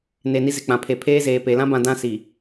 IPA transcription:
n e˨ n i˦ z ɪ˨ k͡p ã˨ pʰ e˨ pʰ eː˦ z eː˨ p e˨ l ã˦ b ã˨ d ã˦ s i˨

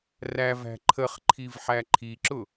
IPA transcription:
r æ v æ̤ ǃʰ ə χ ǃʰ i v ħ æ ǃʰ i ǁ ʊ

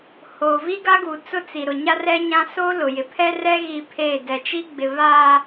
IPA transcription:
h oː˨ v i˦ ɡ a˦ ɡ u˨ t͡s ʊ˦ t͡s i˨ ɾ ʊ˨ ɲ a˦ r ɛ˦ ɲ ã˦ s o˦ l ʊ˨ j ɪ˨ pʰ ɛ˦ r ɛ˦ ɣ i˦ pʰ eː˦˨ d ɛ˨ t͡ʃ i˦ ɡ͡b ɪ˨ β a˨

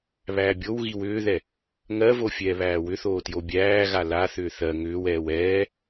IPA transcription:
β æː bʲ o w ɣ i w ʏː ð ɛ | ŋ ɜ v o fʲ ɛː β æː w ʏ θ oː t j o bʲ æː ɣ a l a θ ʏː θ ɜ ŋ ʏː w ɛː w ɛː

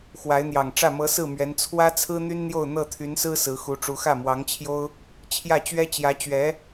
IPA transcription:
x w a˧˥ ɪ̯ n̪ j ɑ˨˩ ŋ ʈ͡ʂ ä˥˩ m ɤ˧˥ s ɹ̩˥˩ m ɥ ɛ˧˥ n t͡sʰ w ä˥ t͡sʰ ɹ̩˥ n̪ y˥ n n̪ j o˥˧ ʊ̯ n̪ ɤ˥˩ t̪ʰ y˧˥ n s ɹ̩˥ s ɹ̩˧˥ x u˧˥ ʈ͡ʂ u˧˥ x ä˥˩ m w ɑ˧˥ ŋ t͡ɕʰ j o˥ ʊ̯ | t͡ɕʰ j ä˥˩ t͡ɕ ɥ ɛ˥ t͡ɕ j ä˧˥ t͡ɕ ɥ ɛ˧˥

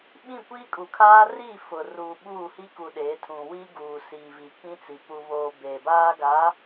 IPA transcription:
ɓ ĩ˦˨ kʷ iː˦ kʼ u˨ kʰ aː˦ r i˦˨ f ʊ˨ r uː˨ ɓ uː˦˨ h i˦ k u˨ ɗ eː˨˦ tʰ ũ˨ w i˦ ɡ uː˨ s iː˨ v i˨ k ĩ˦ t͡s i˨ p u˨ β oː˨ b eː˨ b aː˦ ɡ a˨˦

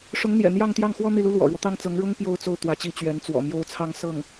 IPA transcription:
ʂ ʊ˧˥ ŋ n̪ j ɛ̰˨˩ n̪ j ɑ˥˧ ŋ t̪ j ɑ˥˩ ŋ x w ɔ˥ n̪ i˥˩ l u˥ l w ɔ̰˨˩ ɻ w ɔ˦ t̪ ɑ˥˩ ŋ t͡s ɤ˧˥ ŋ ɻ ʊ˥ ŋ p j o˥ ʊ̯ t͡s o˥˩ ʊ̯ t̪ w ä˧˥ t͡ɕ i˧˥ t͡ɕ ɥ ɛ˧˥ n t͡s w ɔ̰˨˩ m j o˥ ʊ̯ t͡sʰ ɑ˥ ŋ s ɤ˥˩ ŋ

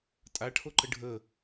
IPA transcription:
tʼ a ʈʰ o ǃ ə ɖʱ ə

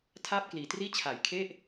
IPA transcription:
tʰ aː˥˩ p̚ k l iː˨˩ t r iː˥˩ t͡ɕʰ a˨˩ j kʰ e˥˩ ʔ

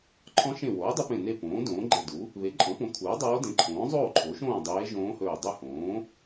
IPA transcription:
ǃʰ ɔ̃˧˥ ʃ ẽ˧˩ w oː˩˥ dˤ u˧˥ p ẽ˧˩ n e˥˨ p õː˩˥ d õː˩˥ ɡ͡ǃ e˧˩ d u˩˥ | β e˩˥ ǃʼ ɔ̃˩˥ p õ˩˥ kʰ uː˩˥ dˤ oː˧˥ d ẽ˩˥ ǃʰ õː˩˥ zˤ oː˥˨ ǃʰ o˩˥ ʃ õː˥˨ dˤ eː˧˥ ʒ õː˧˥ h ɵː˧˩ dˤ ɵ˥˨ h õː˩˥

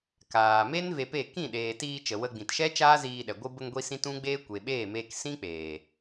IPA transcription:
k aː˨ m e˦ n v e˧ p e˦˨ k ĩ˦˨ ɗ eː˨ t iː˧ t͡ʃ ə˨ w ə˧ ɡ͡b ĩ˨ t ʃ ɛ˦ t͡ʃ aː˦ z iː˧ ɗ ɛ˨ ɡʷ ɨ˧ b ə˧ ŋ ɡʷ i˧ s ĩ˦ t ũ˦ ɡ͡b eː˦ kʷ e˨ ɓ eː˦˨ m eː˧ k s ĩ˦ k͡p eː˨

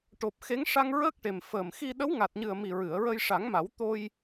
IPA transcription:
ʈ o˨˩ p̚ x e˧˥ ŋ ʂ a˧ ŋ ɹ əː˦˥ k̚ ʈ e˨˩ m f əː˨˩ m x i˧ ɗ ə˧˥ w ŋ a˨˩ t̚ ɲ ɨ˨˩ ə̯ m i˨˩ ɹ ɨ˨˩˨ ə̯ ɹ ə˧ j ʂ a˨˩˦ ŋ m a˨˩˦ w t̪ o˧ j

